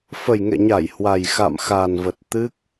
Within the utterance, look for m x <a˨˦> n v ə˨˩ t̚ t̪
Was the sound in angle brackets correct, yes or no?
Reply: no